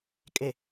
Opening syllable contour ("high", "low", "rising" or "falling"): low